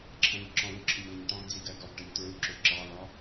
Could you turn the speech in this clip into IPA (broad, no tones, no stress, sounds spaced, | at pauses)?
ǁʰ ə̃ː ʎ ǁ ɔ̃ w u ǁʰ ɪ ɲ l ə ɲ ʈ ɑ̃ ɡ d͡z i ɡ ɜ ɡ ɔ ɡ ʈ ʌ ɲ t ɹ u ǁ ʊ ǁ ɑ l ɒ